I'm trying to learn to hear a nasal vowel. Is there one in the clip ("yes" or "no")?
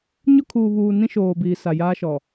yes